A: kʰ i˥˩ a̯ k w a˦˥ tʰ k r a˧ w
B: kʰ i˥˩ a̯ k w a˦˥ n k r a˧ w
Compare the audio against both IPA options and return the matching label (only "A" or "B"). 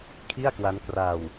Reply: B